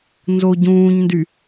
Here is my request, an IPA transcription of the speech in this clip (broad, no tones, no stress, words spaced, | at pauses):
nzoɟũːɲndy